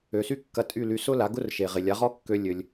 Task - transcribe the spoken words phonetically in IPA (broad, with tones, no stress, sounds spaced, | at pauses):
ø˩ s y˥ kː ɐ˧ tʼ y˥˩ l y˩˥ s ʊ˥ l a˩˥ ɡ ʊ˥ r ʃ e˩ ʁ ɪ˩ lʲ a˩˥ ʁ ɔ˥ kː ø˧ lʲ ø˩ lʲ